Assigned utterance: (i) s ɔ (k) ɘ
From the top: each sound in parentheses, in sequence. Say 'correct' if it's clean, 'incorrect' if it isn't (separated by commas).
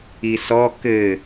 correct, correct